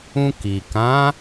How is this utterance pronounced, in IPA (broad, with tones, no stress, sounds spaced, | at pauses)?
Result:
ũ˧ k i˨ k ã˨˦